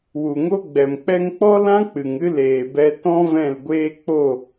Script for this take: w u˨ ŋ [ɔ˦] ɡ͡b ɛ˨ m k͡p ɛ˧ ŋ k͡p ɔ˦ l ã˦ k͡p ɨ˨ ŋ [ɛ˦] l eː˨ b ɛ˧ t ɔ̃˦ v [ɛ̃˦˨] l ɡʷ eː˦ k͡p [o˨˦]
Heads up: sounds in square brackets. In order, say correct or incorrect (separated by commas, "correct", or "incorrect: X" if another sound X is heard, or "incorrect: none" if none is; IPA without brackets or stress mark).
incorrect: o˦, incorrect: ɨ˦, correct, incorrect: o˦˨